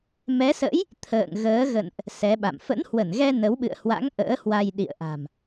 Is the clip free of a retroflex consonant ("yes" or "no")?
yes